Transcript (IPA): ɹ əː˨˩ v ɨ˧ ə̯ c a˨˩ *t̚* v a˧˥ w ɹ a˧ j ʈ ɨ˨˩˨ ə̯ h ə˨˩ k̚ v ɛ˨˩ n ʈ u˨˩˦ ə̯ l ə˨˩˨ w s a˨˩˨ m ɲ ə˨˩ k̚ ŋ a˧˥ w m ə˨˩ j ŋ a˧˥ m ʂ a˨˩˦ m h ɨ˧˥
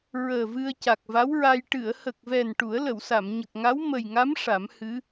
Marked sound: incorrect: k̚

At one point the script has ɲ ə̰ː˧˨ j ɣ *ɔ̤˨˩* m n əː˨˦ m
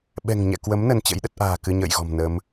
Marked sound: correct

